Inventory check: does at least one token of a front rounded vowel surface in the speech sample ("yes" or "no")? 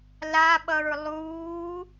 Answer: no